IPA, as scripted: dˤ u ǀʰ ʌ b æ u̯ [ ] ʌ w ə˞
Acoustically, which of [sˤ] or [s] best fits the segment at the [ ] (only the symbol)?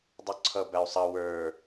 sˤ